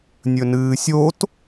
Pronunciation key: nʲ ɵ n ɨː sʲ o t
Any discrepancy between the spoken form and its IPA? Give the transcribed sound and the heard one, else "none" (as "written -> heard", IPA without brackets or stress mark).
none